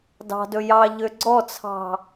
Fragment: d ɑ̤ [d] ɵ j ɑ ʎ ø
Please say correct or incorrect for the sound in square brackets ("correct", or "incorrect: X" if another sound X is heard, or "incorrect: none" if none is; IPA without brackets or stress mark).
correct